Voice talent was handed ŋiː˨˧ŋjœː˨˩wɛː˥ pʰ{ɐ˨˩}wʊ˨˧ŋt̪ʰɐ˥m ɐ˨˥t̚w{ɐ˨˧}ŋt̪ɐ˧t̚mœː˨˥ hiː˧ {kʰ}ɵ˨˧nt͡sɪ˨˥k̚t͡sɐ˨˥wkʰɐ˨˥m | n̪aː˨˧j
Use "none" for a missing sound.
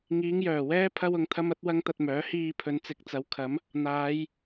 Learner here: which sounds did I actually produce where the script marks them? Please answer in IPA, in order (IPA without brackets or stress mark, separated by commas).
ɐ˥, ɐ˥, pʰ